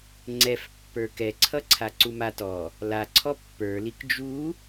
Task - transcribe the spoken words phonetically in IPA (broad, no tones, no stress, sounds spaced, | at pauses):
ŋ͡ǀ ɛ f pː ə˞ k ɛ ǀʰ ʌ ǀʰ a ǀ u m a t ɔ | l a ǀʰ ɔ pː ə˞ l i k d͡ʒ u